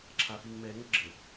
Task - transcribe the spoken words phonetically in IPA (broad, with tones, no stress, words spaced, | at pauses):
ǁʰa˨fi˨ŋ mɛ˨˦ŋə˦ɡ͡ǁə˨